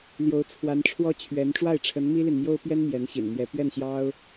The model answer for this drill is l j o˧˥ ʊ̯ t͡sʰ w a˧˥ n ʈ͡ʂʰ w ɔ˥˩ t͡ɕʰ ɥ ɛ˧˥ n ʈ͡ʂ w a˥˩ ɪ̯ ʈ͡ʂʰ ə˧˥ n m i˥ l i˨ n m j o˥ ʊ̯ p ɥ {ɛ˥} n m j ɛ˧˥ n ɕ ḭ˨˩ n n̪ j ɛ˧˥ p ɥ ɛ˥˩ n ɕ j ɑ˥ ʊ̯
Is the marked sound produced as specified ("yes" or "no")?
yes